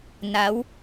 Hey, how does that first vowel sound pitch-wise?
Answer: rising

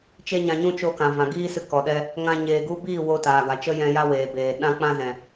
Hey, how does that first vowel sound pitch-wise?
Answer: high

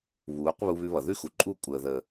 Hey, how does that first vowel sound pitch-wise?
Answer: rising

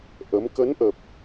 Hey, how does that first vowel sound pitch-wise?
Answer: rising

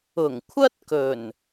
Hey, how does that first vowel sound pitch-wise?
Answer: low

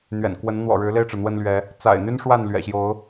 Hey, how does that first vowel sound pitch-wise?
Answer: low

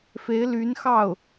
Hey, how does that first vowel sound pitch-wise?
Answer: rising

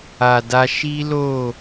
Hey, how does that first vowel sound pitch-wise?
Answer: low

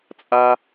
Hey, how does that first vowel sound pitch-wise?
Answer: high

